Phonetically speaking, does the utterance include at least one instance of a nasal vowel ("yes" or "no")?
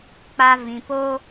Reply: yes